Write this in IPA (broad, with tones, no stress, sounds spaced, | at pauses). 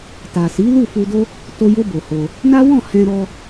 t a˨ s i˨˦ l u˦˨ f u˧ d o˦ | t o˧ j o˧ b o˨ h o˧ | n a˦ w ɔ̃˦˨ h ɛ̃˧ ɾ ɔ˧